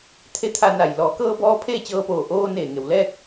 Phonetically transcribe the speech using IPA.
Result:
t̪ʰ e˧˥ t̪ʰ a˧ n a˧˩ j l ɔː˩˧ k ɤː˧ b ɔː˧ pʰ eː˥˨ t͡ɕ ɤː˧ p oː˧˩ ʔ oː˧ n eː˧˩ ŋ e˧˩ w l ɛː˥˨ k̚

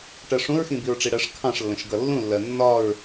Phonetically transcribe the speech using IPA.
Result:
ʈ ɜ ʂ ũ ɹ x ĩ b i ɹ ʈ͡ʂ i ɽ ɜ ʂ kʰ ɑ̃ ʂ lː ə̃ ʃ ɡ ʌ lː ũ lː ɜ nː ɒ ɹ

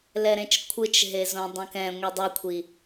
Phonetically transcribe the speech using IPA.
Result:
l ɛ ɾ ẽ t͡ʃ kʷʰ ɯ t͡ʃ ɦ e z õ dˤ ũ k ɛ̃ ŋʷ i dˤ ʌ kʷʰ i

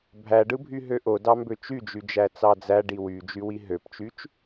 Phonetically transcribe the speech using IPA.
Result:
bʱ æ ɖ ɯ bʱ y ɦ ø ʔ o d ɑ m b ø t͡ʃ y d͡ʒ y d͡ʒ æ t͡s ɑ d͡z æ ɖ i w y d͡ʒ y w i ɦ ø p t͡ʃ y t͡ʃ

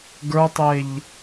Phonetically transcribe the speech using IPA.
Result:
ɡ ə˞ tˤ e ʎ

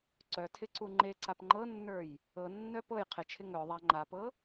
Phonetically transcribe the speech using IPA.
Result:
ǀ œ tʰ ɪ ǀ u ŋ͡ǃ e ǀ a p ŋ͡ǃ ɤ nː ə˞ j | ɤ nː œ p ɤ j qʰ ɪ t͡ʃʰ ɪ ŋ œ ðˤ a ŋ͡ǃ a p ɤ

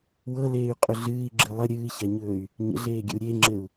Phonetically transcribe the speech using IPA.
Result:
w ɤ l eː y̯ qʼ ɵ ɮ ɨː i̯ ɡ͡ǁ ɨ lˠ ə ɾʲ ɨː ç a ɲ ɵː y̯ | ɲ ə̰ ɮ eː ɡʲ ə̰ u̯ ɾʲ e ŋ͡ǁ ɘ u̯

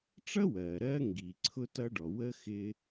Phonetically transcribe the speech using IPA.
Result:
ʈ͡ʂ ʌ˥ w ɜː˩ ɾ ɜː˥ ŋ ɡ iː˩ ǀʰ ʊ˥ t ʌ˥ ɖ ɔ˩ w ə˥ x ɪː˥

